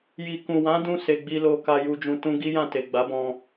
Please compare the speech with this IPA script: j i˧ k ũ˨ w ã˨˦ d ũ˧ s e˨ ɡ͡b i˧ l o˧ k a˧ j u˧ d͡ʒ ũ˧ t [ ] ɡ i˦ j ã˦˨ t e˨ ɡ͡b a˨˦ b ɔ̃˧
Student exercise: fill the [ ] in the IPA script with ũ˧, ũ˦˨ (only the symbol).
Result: ũ˧